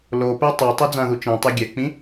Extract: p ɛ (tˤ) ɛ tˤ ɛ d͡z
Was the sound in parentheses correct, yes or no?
yes